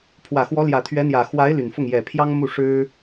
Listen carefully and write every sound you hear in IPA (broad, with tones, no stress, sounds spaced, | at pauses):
pʰ w ä˨˩ x w ɔ˧˥ l j ä˨˩ t̪ʰ ɥ ɛ˧˥ n̪ j ä˨˩ x w a˧˥ ɪ̯ l y˨˩ n f ʊ˥˩ ŋ j ɛ˨˩ pʰ j ɑ˥ ŋ m u˥˩ ʂ ɻ̩˥